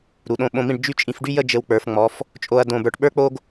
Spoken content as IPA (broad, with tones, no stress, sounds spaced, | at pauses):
ɾ u˩˧ ɗ õ˧ ɓ õ˧ m ĩ˥˧ ɖ d͡ʒ y˥˧ t͡ʃʼ ĩ˧ f ɖ y˥ j ə˥˧ d͡ʒ ɘ˧ w k͡p ə˞˩˧ f ŋ͡m ɔ˩˧ f | t͡ʃʼ o˧ ɐ̯ d õ˧˩ b ə˞˧˩ ʈ ɓ ə˞˥ k͡p o˥ ɡ